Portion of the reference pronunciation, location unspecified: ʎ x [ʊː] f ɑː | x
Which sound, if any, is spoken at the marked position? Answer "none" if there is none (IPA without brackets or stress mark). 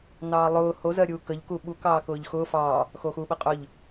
ʊː